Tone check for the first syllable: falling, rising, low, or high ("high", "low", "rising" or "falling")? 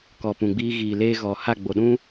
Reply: low